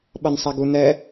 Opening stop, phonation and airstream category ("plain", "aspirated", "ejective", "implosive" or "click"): implosive